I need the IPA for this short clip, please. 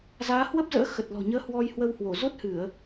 zaː˨˦hwə˦˥p̚zə̰ː˧˥ xə˨˩t̚lɔ̤˨˩ɲəː˨˦ hwɔ˧jhwə˧whwo˧˩ zo˦˥t̚hɨ˧˩˨ə̯

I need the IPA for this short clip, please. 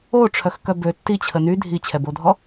oʈ͡ʂʰœxkœ bø tːit͡ɕʰə ny dʱit͡ɕʰɛbodʱɔ

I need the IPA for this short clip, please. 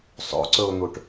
sˤo̰ǀɵʊ̯n̪uʈ

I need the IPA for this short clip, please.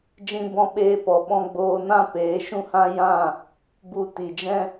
d͡ʒĩ˧bɔ̃˧ɓeː˧pɔ˨ ɓɔ̃˧ɡ͡boː˧ nã˦peː˨˦ʃũ˦hã˦ jã˦˨ | bu˧ ti˨d͡ʒɛ̃˦

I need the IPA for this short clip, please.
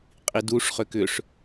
qʼiduʂχʏ kʏʂ

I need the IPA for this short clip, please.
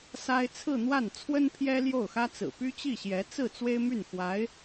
sa˥ɪ̯ t͡sʰɹ̩˥˧n̪wa˥˩nt͡sʰwə˥n pʰjɛ˥ljo˥˩ʊ̯xä˥t͡sɹ̩˨˩ py˥t͡ɕi˥˩ɕjɛ˧˥ t͡sɹ̩˥˩ t͡swe˥ɪ̯my˥˩n xwa˧˥ɪ̯

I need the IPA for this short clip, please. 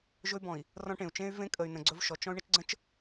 ʒɵ˦y̯bɔ̃˨i̯ | rɔ̃˦ʈẽ˨u̯ t͡ʃẽ˦y̯vẽ˦ kʼə˨y̯nə̃˨ɡ͡ǀɵ˦v ʃɔ˨t͡ʃ ɔ̃˦y̯ɳə˦t͡ʃɡ͡ǀə̃˦t͡ʃ

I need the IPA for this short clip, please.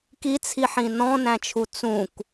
kit͡sʰiħĩ nɔ̃næ̃t͡ʃʰu t͡sũk

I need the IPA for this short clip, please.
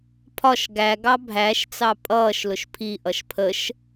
pʰɒʃ ɡæɡɑ bʱæʃt͡sɑ pʼʌːʃlʊʃ pʰiʔʌʃ pʰəʃ

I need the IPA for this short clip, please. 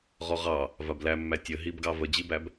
ʁɔʁɑ | vablæmːæ tʲə ɦibɡɑ vəd͡ʑibæb

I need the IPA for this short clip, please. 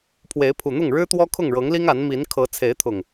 pʰwe˨˦ɪ̯pʰu˨˩n̪ʊ˥˨ŋ ɻɻ̩˦t̪wɔ˦ kʰʊ˥˨ŋɻɤ˨˦ŋli˦ŋ a˨˦nmi˨˦n kʰɤ˨˦ t͡sʰe˨˦ɪ̯t̪ʰʊ˨˩ŋ

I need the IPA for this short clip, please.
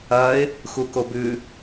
ɐɪ̯ | xukobʉ

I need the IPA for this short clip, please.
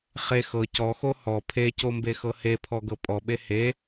χe xɤ cɔxo hɔ pʰecombexɤ hepʰɔɡɤ pʼɔɓe he

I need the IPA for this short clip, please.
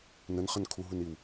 nənχən kʰuɦuniw

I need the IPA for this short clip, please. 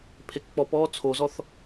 pʰekk͡pɔpɔː t͡sʰozɔθ

